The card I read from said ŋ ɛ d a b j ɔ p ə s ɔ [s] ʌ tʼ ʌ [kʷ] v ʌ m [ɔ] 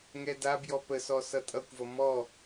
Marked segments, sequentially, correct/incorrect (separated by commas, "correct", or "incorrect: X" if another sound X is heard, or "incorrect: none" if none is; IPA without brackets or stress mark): correct, correct, correct